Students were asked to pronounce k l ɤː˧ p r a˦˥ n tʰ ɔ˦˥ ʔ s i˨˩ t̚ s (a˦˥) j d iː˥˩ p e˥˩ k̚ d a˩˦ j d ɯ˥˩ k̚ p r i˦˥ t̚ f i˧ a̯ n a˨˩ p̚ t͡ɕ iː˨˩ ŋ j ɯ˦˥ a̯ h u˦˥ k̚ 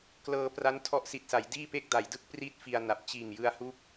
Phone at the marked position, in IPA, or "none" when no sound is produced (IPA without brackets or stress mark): a˩˦